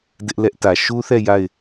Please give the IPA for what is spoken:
d ɪ˦ ʔ l ɛ˦ ʔ t ä˨ ʃ u˦ θ ɛ˦˨ j a˦˨ ɪ̯

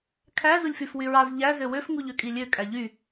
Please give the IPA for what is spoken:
kʰ æ z u lʲ f y f w y ɹ ɑ z ʎ æ z ø w ø f ŋ u ʎ ø kʼ i lʲ ø kʼ æ ʎ y

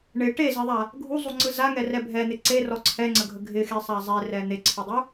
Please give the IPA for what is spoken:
ɳ ɪ ʈ e z e ðˤ a | ɡʱ u zˤ u ŋ͡ǀ ɯ z a ŋ ɛ r ɛ bʱ ɛ n̪ ɪ ǀ e r ɔ ǀʰ ɛ ŋ͡ǀ ə ɡʱ ə ɡʱ ɪ x e sˤ a zˤ e r ɛ n̪ e ǀʰ ɯ dˤ u

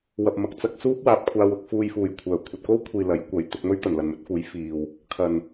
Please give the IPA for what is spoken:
w ɐ˨ p̚ m ɐ˨ k̚ t͡s ɐ˨ k̚ s uː˥ p̚ w aː˨ p̚ kʷʰ aː˧ w ʊ˧ k̚ f uː˧ j f uː˨˩ j kʷʰ œː˨˩ kʷʰ ɐ˨ t̚ k o˥ w kʷʰ iː˨ l ɐ˨˥ j kʷ ɐ˨˥ j t̪ ɪ˧ k̚ m ɵ˥ ɥ t̪ ɐ˨˩ n l ɐ˨ n m ɵ˨˥ t̚ f uː˨˥ j f iː˨ w | kʰ ɐ˨˩ n

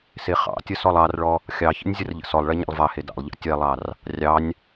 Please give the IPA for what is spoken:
s e χ ɑ̰ tʲ ə s ɔ lˠ ɑ r ɭ ɔ | xʲ ɑ ç ə̰ nʲ zʲ ə r ʎ ə̰ s ɔ lˠ ɭ ɛ ɲ ɑ̰ lˠ v ɑ h e d ɑ̰ lˠ ʎ ɑ̰ tʲ ɛ lˠ ɑ r | rʲ ɑ nʲ

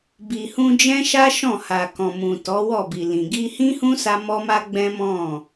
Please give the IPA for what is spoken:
b i˨ h ũ˧ d͡ʒ ɛ̃˦ ʃ a˦ ʃ ɔ̃˦˨ h a˨ k ɔ̃˨ m ũ˨ t ɔ˨˦ w ɔ˦˨ b i˨ l ĩ˨ ɡ i˧ h ĩ˦ h ũ˦ s a˧ m ɔ˦ m a˦ ɡ͡b ɛ̃˦ m ɔ̃˦˨

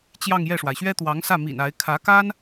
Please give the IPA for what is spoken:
t͡ɕ j ɑ˥˧ ŋ j ɛ˥˩ ʂ w a˩ ɪ̯ ɕ ɥ ɛ˥ t̪ w ɑ˧˥ ŋ s ä˥˩ m ḭ˨˩ n a˧˥ ɪ̯ kʰ ä˧˥ k a˥ n

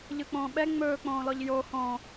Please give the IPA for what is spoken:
ʎ ɯ k͡p õː ɓ ɛ ŋ͡m ɵː k͡p õː l ɔ ʎ j o h õː

